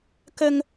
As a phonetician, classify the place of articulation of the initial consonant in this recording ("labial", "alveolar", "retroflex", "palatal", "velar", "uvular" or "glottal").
velar